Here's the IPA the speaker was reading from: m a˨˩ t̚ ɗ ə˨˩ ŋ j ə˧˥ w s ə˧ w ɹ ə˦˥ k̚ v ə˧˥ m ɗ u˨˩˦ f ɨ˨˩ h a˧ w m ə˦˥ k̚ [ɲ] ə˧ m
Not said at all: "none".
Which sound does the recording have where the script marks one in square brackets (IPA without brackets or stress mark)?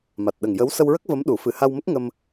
ŋ